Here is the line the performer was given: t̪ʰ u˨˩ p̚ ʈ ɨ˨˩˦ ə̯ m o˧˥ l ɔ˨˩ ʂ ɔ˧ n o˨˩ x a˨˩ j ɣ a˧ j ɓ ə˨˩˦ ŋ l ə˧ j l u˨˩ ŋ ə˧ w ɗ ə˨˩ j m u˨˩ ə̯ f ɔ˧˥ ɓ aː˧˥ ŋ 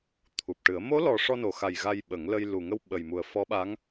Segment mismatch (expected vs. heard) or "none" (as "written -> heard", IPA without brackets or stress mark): ɗ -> ɓ